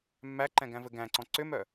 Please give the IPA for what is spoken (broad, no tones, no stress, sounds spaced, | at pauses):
mː æ ǃ ɛ̃ ɡ æ̃ v ɘ ɡ æ̃ ǀ ɔ̃ ǀ ʏ m œ